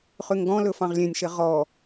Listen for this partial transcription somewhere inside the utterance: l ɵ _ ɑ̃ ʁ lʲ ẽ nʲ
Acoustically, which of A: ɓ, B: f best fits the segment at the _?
B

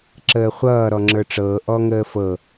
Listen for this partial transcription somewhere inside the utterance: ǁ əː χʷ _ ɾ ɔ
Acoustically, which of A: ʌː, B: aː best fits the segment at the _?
A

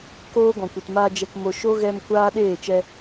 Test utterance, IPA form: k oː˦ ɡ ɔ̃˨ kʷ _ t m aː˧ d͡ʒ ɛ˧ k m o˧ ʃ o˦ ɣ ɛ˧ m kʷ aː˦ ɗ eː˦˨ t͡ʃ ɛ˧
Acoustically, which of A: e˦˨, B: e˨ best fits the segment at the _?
B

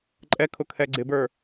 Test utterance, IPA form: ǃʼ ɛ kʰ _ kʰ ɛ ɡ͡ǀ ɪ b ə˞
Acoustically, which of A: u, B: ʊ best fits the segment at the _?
B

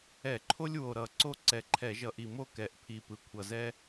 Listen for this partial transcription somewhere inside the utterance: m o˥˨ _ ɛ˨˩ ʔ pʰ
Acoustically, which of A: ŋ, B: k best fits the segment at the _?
B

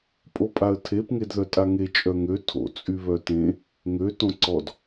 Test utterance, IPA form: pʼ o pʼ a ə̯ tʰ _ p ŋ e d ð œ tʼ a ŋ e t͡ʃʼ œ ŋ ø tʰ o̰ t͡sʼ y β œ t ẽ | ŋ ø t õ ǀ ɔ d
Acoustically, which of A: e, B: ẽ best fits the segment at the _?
A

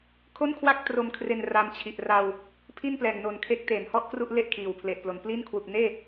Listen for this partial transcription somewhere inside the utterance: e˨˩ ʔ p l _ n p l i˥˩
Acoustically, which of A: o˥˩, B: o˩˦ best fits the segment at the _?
B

